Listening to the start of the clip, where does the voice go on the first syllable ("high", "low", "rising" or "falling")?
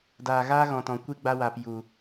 low